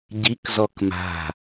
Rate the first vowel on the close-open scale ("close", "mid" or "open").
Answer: close